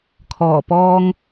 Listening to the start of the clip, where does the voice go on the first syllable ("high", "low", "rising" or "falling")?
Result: low